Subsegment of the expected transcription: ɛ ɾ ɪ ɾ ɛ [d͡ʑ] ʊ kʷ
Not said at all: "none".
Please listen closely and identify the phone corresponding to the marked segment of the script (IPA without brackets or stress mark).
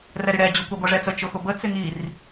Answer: d͡ʑ